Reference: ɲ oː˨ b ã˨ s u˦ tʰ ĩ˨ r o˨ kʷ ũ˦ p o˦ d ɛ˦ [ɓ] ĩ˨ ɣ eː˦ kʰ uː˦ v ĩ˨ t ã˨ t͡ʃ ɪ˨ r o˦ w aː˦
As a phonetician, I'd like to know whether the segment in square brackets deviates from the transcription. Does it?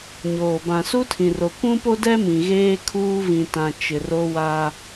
yes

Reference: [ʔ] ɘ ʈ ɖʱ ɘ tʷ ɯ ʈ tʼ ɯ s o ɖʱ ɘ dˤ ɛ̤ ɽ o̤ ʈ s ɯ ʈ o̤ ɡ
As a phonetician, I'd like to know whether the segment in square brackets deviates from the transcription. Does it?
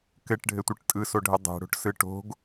yes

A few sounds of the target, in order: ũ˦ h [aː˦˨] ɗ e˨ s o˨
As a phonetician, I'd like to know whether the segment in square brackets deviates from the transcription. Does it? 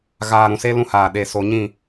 yes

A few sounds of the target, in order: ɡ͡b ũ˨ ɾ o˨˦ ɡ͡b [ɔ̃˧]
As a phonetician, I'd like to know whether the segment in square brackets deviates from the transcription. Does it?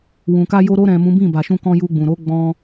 no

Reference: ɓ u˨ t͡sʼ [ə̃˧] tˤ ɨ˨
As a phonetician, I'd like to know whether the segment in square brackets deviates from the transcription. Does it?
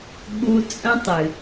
no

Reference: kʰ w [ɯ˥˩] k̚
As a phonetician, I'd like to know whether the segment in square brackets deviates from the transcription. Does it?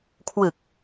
yes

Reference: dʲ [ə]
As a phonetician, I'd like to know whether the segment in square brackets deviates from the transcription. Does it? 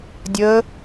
no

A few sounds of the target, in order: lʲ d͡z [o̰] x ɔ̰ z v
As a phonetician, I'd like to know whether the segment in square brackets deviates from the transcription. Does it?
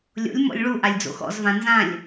no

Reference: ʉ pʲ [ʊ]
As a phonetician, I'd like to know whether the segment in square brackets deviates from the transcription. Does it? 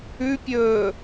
yes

